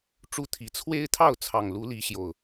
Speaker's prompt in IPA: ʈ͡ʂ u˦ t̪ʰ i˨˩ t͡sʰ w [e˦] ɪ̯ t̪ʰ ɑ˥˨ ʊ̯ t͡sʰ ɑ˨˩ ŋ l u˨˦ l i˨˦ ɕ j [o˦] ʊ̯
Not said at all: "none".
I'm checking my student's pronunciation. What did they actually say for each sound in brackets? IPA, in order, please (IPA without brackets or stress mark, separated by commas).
e˦, o˨˩